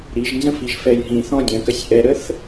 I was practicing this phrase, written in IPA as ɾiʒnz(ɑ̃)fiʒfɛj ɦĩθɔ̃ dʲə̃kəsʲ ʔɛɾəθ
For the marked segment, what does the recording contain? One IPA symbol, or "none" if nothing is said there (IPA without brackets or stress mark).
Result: ə̃